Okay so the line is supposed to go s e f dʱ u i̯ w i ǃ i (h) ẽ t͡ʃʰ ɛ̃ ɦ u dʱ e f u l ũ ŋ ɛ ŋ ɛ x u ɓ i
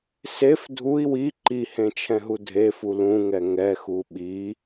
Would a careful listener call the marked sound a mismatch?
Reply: no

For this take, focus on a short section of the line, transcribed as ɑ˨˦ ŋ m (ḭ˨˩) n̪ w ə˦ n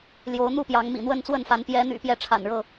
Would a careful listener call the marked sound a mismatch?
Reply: no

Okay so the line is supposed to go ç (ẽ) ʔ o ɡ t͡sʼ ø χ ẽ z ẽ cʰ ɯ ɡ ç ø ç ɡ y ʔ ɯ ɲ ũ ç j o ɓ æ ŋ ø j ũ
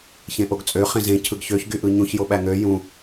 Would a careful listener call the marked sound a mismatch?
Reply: no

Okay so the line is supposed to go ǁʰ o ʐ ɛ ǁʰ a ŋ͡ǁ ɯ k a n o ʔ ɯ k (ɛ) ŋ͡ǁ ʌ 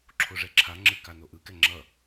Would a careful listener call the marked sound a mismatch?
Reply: no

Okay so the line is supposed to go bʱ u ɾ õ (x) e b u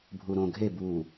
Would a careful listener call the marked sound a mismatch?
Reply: yes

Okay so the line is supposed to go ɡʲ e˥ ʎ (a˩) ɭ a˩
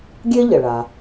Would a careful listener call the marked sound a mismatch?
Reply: yes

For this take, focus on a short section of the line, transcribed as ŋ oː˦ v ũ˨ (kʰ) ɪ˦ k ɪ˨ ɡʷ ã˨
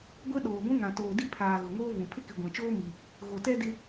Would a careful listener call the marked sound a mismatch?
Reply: yes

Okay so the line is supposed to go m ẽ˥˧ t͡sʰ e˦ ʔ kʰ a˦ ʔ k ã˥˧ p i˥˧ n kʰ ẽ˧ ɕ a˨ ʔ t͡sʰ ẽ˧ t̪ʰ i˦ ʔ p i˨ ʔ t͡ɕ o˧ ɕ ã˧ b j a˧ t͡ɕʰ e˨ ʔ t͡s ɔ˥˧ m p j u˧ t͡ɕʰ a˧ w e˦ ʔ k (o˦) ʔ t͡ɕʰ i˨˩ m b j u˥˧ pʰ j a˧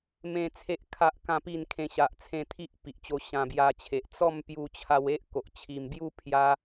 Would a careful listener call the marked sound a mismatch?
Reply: yes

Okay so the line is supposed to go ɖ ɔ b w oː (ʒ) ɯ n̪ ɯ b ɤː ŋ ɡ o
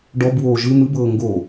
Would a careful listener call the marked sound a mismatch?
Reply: no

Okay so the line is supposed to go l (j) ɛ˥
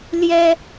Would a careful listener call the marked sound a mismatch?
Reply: no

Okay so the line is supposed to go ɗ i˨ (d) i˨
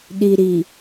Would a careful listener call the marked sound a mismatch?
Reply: yes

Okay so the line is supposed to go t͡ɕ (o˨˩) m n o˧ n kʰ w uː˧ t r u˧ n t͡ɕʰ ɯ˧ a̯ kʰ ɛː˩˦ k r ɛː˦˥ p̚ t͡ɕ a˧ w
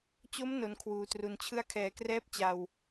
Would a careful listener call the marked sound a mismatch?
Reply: yes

